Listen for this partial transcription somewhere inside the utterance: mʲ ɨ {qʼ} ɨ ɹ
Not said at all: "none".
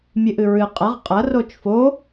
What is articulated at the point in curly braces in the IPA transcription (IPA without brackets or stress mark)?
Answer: ʔ